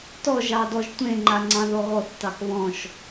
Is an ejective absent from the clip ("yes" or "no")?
yes